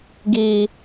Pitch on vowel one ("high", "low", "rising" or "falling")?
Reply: low